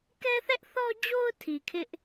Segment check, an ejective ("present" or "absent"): absent